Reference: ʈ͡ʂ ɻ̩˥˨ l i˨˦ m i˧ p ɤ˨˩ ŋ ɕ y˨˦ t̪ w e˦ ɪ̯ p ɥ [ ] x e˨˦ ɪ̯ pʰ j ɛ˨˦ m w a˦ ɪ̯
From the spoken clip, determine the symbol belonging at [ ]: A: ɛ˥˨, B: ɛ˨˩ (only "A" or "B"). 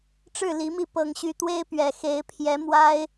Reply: B